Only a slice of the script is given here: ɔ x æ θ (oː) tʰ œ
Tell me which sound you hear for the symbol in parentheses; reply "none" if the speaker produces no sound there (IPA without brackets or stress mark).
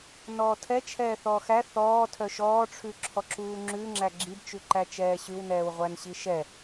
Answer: ɔː